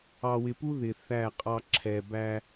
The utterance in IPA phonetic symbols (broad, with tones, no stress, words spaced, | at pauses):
ɑ˨wɪ˨pu˦ ðɪ˨θæ˦˨qʼɑ˦ ǁʰɛ˨bæ˦